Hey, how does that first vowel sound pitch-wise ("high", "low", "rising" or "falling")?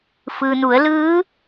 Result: low